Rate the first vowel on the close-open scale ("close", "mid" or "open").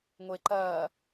mid